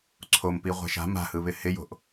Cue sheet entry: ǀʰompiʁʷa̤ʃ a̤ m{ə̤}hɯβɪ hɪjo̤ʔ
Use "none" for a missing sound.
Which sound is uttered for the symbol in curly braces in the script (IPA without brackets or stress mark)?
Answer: a̤